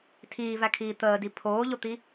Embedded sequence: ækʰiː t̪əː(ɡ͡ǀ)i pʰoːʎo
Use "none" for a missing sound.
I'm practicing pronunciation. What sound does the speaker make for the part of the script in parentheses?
d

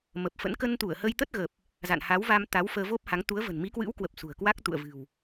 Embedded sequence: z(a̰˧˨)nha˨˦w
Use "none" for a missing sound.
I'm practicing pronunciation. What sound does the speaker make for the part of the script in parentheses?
a̰˧˨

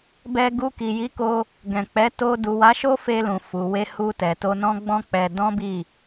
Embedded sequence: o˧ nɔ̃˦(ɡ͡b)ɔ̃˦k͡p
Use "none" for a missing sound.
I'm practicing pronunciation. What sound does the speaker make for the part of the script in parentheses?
ɡ͡b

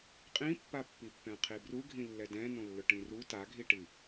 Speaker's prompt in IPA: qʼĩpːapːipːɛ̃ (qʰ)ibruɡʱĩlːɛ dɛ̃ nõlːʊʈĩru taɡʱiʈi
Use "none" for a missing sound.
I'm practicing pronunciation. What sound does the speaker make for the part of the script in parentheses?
qʰ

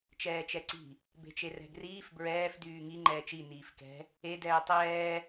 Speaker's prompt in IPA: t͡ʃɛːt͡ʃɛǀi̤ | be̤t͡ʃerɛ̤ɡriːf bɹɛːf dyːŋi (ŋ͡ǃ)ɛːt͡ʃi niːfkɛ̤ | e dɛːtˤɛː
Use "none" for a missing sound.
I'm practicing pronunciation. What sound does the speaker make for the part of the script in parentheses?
ŋ͡ǃ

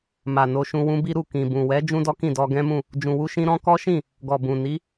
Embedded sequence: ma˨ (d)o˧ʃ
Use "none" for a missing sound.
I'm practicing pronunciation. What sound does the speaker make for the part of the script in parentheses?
n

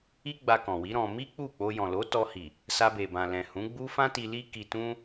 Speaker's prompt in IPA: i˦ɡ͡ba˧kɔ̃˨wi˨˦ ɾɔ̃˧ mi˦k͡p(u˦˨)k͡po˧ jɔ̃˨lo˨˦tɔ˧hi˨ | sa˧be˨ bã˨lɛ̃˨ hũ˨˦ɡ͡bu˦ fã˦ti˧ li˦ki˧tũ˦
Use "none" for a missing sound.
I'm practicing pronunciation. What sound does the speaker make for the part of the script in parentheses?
u˦˨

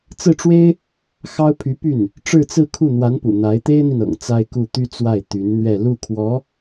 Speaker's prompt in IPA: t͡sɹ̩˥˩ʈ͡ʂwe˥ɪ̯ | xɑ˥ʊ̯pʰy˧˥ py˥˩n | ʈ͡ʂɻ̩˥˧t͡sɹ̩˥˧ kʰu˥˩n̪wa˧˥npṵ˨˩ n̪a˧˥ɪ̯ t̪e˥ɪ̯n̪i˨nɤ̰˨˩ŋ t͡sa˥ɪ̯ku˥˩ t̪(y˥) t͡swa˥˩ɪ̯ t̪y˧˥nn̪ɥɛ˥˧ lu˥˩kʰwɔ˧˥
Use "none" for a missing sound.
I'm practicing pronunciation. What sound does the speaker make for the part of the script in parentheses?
y˥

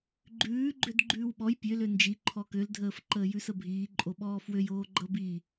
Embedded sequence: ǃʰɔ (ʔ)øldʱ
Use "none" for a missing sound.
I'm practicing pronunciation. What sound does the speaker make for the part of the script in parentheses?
k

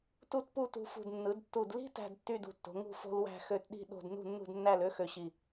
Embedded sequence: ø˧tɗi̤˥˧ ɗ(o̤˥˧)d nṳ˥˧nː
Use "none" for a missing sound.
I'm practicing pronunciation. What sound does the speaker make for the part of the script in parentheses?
o̤˥˧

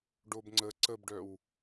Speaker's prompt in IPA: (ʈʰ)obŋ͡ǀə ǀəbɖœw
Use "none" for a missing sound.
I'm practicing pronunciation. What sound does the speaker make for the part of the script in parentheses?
ɖ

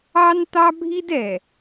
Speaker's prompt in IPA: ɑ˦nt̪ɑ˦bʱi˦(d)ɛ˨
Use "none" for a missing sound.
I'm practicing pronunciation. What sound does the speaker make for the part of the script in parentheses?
d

